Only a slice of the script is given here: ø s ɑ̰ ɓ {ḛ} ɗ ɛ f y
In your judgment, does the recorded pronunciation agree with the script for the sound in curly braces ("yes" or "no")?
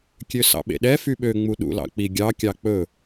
yes